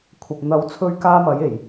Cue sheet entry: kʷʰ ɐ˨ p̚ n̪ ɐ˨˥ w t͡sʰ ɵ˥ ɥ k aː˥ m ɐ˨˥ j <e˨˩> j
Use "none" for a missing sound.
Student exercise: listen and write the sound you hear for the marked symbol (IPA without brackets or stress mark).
e˨˩